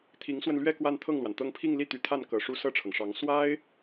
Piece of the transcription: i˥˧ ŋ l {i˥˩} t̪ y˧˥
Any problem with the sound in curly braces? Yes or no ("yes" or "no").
no